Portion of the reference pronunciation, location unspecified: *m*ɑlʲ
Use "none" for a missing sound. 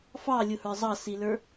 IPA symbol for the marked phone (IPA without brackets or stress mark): f